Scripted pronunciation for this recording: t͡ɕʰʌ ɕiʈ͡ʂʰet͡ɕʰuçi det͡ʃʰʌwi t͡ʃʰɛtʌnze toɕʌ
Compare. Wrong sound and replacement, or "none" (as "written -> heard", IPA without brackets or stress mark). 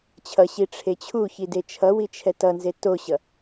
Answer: none